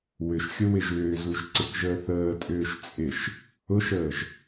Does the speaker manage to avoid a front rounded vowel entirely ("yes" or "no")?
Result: no